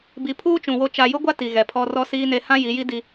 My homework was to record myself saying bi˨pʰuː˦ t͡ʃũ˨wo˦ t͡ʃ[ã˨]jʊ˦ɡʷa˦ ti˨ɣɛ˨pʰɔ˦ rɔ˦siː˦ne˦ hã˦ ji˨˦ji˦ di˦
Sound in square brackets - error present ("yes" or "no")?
yes